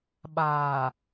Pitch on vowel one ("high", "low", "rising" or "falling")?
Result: low